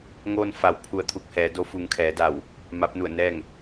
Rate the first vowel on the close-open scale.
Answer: mid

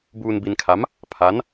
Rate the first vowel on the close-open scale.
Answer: close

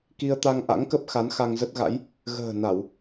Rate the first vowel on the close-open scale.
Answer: close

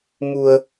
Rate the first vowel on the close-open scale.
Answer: close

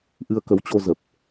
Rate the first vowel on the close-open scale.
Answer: close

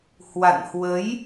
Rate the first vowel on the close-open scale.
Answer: open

